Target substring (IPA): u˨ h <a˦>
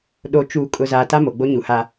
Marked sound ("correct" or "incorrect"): correct